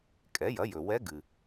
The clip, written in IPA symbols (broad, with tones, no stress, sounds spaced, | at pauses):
kʼ ɛ˩˥ j ɐ˩˥ j ɵ˩ w ɛ˧˥ ɡ ɨ˩